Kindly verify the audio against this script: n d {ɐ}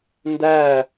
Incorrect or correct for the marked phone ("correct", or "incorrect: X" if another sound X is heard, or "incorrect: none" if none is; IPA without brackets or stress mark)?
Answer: incorrect: æ